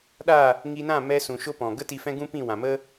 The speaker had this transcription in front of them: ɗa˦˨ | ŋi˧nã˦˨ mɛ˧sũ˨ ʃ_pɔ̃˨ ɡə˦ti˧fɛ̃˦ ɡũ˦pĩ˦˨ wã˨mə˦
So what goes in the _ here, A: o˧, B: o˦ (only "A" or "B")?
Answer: B